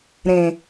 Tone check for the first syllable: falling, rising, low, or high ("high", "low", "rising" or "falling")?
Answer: low